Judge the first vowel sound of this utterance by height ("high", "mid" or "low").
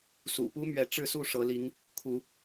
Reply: high